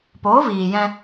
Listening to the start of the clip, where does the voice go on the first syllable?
rising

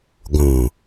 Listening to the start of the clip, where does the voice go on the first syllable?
low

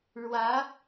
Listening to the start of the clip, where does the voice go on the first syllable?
rising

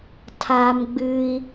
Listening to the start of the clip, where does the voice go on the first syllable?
high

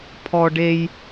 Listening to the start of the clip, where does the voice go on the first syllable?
high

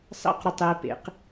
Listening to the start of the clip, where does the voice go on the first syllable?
high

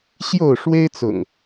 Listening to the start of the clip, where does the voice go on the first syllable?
falling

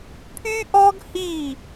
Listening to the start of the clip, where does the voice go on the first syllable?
high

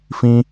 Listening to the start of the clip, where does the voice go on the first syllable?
high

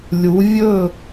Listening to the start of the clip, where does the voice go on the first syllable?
rising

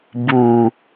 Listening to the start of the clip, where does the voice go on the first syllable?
low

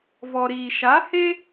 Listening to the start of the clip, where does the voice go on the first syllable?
low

